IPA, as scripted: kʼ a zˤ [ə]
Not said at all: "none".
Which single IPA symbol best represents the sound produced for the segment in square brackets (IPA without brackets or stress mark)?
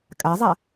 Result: a